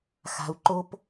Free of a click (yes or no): no